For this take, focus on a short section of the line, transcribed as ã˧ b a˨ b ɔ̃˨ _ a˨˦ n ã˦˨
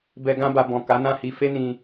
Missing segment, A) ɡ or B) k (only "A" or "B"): B